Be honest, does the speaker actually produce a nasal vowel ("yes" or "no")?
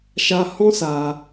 yes